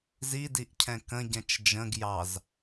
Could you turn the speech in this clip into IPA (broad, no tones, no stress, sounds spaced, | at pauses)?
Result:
z i d i ʔ cʰ ɛ̃ k ə̃ ɟ ɛ̃ t͡ʃ d͡ʒ ə̃ ɡ j ɑ z